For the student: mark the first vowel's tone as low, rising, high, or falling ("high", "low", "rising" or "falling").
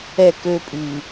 falling